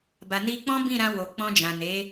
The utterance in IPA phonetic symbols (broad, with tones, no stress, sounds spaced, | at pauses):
b a˨ n i˧ k͡p ɔ̃˦ b ĩ˦˨ ɾ ã˧ w o˨ k͡p ɔ̃˧ d͡ʒ ã˨ n e˨˦